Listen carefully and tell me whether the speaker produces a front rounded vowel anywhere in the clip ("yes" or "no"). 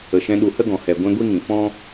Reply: no